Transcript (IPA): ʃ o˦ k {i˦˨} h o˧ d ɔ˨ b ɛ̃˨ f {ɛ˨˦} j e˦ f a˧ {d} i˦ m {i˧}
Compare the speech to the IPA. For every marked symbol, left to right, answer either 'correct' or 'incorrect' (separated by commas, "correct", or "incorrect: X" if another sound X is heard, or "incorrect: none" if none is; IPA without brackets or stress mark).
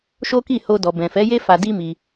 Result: correct, correct, correct, correct